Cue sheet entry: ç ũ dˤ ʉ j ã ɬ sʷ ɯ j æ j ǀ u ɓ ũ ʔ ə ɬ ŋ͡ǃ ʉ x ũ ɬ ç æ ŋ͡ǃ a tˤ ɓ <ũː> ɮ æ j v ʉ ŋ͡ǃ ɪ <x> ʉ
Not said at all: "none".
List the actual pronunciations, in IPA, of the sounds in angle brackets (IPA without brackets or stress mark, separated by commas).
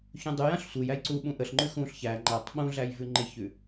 ũ, ç